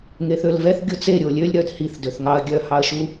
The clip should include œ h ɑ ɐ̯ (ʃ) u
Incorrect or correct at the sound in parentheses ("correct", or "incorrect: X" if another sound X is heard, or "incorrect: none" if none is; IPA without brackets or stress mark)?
correct